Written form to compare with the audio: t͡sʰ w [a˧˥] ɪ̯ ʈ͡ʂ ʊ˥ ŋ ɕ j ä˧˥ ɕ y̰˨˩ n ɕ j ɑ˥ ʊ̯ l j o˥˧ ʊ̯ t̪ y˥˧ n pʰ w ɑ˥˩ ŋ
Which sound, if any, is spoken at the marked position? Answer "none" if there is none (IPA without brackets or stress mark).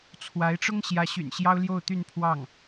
a˧˥